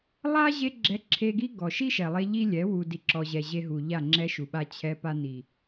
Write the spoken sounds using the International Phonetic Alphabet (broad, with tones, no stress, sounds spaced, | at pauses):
lˠ a˦ ʑ e˧ ɡ͡ǁ ɛ˧ ǁʰ e˧ ɡ i˦ ɡ ɔ˨ ʃ i˦ ʃ ɛ˨ lˠ e˧ ʎ i˦ lʲ ɛ˨˦ w u˨ d i˨ ǁ ɔ˨ ʑ ɛ˨ ʑ e˧ ɦ u˨ ʎ a˦˨ ŋ͡ǁ ɛ˦ ʃ u˨ ɓ a˧ t͡ɕʰ ɛ˧ p a˧ n i˨